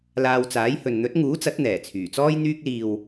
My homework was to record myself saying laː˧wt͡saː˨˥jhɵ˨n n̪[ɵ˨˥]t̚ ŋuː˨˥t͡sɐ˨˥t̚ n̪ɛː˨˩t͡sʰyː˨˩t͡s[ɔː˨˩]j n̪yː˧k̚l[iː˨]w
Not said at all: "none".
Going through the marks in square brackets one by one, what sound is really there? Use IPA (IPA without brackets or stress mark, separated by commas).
ɵ˨˥, ɔː˥, iː˨